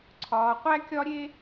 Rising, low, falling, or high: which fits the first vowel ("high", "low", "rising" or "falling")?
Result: low